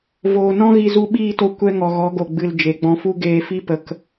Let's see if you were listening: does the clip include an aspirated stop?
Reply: no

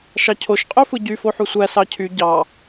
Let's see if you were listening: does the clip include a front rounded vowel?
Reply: yes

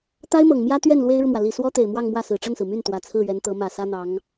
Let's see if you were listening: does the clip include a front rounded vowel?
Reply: yes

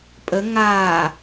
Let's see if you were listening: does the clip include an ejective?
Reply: yes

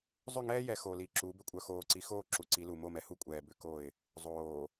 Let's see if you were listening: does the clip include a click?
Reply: yes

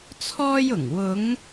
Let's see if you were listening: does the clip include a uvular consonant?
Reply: no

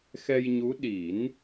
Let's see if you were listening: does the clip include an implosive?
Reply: yes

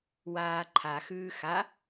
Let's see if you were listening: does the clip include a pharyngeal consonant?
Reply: no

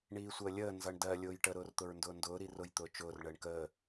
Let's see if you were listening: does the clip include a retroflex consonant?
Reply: yes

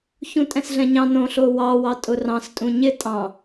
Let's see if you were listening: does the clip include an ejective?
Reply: yes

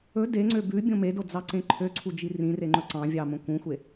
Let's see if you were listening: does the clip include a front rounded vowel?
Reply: yes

